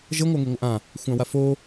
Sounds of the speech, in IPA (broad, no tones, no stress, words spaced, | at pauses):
ʒə ŋʷaŋeŋʷəʔã | xʷãwafo